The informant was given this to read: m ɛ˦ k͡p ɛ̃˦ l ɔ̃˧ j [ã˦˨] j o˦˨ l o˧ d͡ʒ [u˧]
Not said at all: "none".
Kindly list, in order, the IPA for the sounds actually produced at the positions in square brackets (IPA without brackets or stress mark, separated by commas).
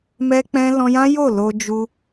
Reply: ã˦, u˧